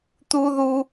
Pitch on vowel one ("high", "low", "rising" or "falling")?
high